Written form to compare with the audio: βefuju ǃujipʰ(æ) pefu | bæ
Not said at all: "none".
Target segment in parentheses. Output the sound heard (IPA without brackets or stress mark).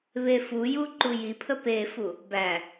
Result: ə